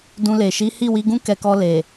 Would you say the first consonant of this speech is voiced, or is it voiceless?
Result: voiced